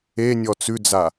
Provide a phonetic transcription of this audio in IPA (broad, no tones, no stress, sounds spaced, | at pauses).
e nʲ ɔ t͡s ʉ d͡z a